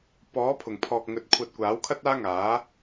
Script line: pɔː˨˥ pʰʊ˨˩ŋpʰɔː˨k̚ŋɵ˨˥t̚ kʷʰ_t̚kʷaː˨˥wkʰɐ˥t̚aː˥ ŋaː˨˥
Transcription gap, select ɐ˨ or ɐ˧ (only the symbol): ɐ˧